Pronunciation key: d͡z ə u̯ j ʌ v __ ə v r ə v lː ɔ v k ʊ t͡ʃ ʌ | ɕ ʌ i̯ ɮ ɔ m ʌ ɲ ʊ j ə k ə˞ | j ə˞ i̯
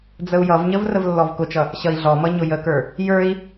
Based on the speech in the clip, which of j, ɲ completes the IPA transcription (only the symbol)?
ɲ